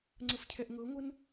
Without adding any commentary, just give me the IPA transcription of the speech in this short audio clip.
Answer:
ŋ͡ǀəfcʰɛʔŋɤŋʷən

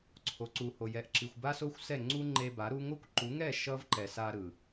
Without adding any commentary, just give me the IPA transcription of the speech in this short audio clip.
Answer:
ǀʰo˨ǀu˨ho˨ jɛ˨ʔǁi˨xʷba˦so˦xʷ sɛ˦˨ŋ͡ǀu˦ŋ͡ǃe˧ ba˨˦ɾu˦ ŋo˦kʷ ǃu˨˦ŋɛ˦˨ ʃʌ˦vǃɛ˨ sa˧ ɾɯ˨

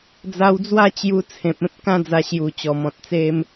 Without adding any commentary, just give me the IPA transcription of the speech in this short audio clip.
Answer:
d͡za˧wd͡zwa˥˧ t͡ɕju˧t͡sʰẽ˨p̚ẽ˦p̚ kã˦d͡za˧ɕju˨˩t͡ɕɔ˨˩ mɔ̃˨t̚t͡se˧m

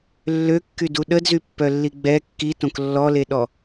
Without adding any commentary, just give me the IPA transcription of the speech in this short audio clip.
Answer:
lːø kːyduɗədzy pːœlːiɡ͡bɛ kːitõk lːɔleɗɔ

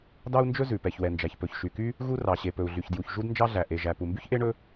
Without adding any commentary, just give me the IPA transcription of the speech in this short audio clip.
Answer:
dɑ˥u̯nd͡ʒɵ˥ zʉ˩ pɛ˩çwɛ˩nd͡ʒæ˩ç pɵ˩çʃy˩ky˥ | ɣu˥rɑ˩ɕe˩ pɵ˩u̯ɮy˩çdju˩ç ʒu˥dnd͡ʒɑ˥ɮæ˩ ʔe˩ʒæ˩ pu˩mby˥çʔe˥ ɳɵ˥

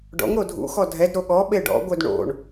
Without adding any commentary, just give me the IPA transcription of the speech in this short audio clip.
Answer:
ɖɔ̰ŋɾo dʱṵxɔ dʱɛdɾo ɠɔ ɓeɖɔ̰ɡʷœd ɳo̰ɳ

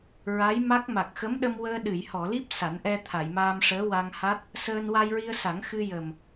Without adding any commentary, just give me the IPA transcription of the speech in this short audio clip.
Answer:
ɹa˧˥jma˦˥k̚ ma˨˩k̚xə˧˥mɗə˧mwəː˧ ɗɨ˨˩˨jhɔ˨˩˨li˦˥p̚ sa˨˩˦n ʔɛ˧t̪ʰa˨˩˨jmaː˧mʂəː˧˥ wa˧ŋha˦˥t̚ | səː˧nwa˧jɹi˧ə̯sa˨˩˦ŋ xɨ˧jə˨˩m

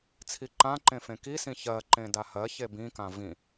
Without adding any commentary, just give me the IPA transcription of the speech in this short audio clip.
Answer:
t͡sʰiǃãǃẽ fẽkisĩ çɜǃẽ dahɜçe bĩkã vĩ

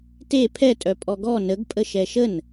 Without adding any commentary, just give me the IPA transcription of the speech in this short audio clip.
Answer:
te pʰɛtʼœ pʼɔɡɔ nəɡpʼə ʃɛʃən

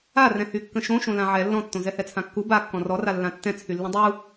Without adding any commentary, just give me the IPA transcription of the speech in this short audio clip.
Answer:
arɛ̃ hykːə̃ʃõʃõ lãʕɛ lːɔ̃tːõ zɛhɛt͡sʰãkːu ba kːɔ̃rɔra lːãtːɛ̃t͡sʰylːũ dˤu

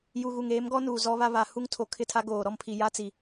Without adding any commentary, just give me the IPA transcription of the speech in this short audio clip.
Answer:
ju˨ɣu˨ŋ eː˨˦mɡɔ˦nuː˨ zɔ˦βa˦ βa˨ hu˦ŋtʰo˨kʰɪ˦˨ tʰa˦ɡoː˨ɾɔ˦mpʰi˨ ja˦t͡si˨

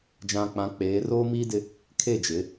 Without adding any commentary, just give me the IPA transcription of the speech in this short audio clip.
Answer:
d͡ʒã˨k͡pã˨˦k͡peː˨˦ roː˦miː˦dɪ˦ | kʰe˦˨d͡ʒɪ˨˦

